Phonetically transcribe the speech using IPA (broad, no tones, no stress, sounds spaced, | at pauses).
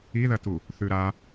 i ð ɐ t u | θ ʉ ɾ a